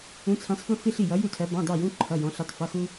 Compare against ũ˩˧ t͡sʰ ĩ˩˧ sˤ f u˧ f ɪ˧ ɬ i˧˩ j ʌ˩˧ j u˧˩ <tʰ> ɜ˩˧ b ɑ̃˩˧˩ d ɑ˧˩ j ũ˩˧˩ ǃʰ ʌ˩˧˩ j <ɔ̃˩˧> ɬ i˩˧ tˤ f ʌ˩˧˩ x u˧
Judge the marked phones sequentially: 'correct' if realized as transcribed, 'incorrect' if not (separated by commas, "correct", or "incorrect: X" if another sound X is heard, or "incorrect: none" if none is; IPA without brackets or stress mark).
correct, correct